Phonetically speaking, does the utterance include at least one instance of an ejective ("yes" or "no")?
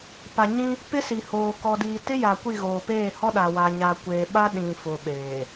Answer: no